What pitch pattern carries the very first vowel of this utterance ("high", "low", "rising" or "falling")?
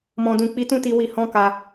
low